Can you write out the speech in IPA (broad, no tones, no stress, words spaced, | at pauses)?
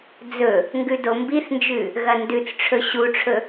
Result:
d͡zɵ | ŋɡʉdombiθnd͡ʒʉ | ɣɐndʉt͡sʈ͡ʂʰɵ ɕuʈ͡ʂʰɵ